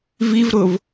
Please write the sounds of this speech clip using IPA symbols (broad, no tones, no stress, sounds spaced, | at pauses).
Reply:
v i v ɾ ʊ v